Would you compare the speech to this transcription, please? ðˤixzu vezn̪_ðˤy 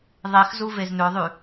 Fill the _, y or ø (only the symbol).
ø